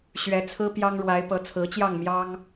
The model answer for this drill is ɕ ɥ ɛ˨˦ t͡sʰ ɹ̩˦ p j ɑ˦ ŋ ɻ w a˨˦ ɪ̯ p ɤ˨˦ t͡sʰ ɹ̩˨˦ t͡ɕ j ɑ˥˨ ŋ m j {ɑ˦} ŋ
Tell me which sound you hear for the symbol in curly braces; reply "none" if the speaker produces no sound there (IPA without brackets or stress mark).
ɑ˦